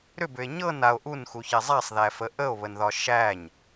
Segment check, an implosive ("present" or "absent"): absent